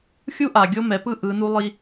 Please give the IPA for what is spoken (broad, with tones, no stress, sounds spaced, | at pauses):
xʲ u˦ ʔ a˨ ɡʲ o˦ m ɛ˨˦ p ɯ˦ ʔ ɯ˨˦ n u˦ lˠ i˦